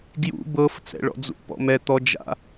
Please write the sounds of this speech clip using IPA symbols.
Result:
ɡ j ṵ b ɤ f t͡s ɛ̰ ɭ ɔ̰ d͡z ṵ p ɔ̰ m ɛ t̪ ɔ d͡ʒ a̰

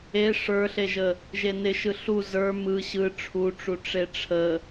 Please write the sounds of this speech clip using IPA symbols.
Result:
e ʂ ə˞ ɬ e ʒ ə | ʒ e n ɪ ʃ ɯ ɬ u z ə˞ m ɯ ɕ ɯ ʈ͡ʂʰ u ʈ͡ʂ u ʈ͡ʂ e ʈ͡ʂʰ ə

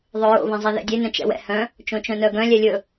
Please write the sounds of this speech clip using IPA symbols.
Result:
ðˤ ɵ ɹ o̰ β ɛ̃ zˤ e ð ɛ̰ dʲ e n œ̃ t͡ʃ ɛ̰ w ɛ̰ h œ̃ | t͡ʃ õ t͡ʃ œ̃ n œ ɡ œ̃ lʲ ɛ lʲ ɵ

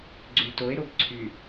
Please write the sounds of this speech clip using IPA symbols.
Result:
ɡ͡ǀ y t o e̯ ɾ o b ǀʰ y

